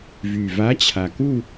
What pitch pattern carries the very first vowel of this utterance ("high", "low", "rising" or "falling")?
low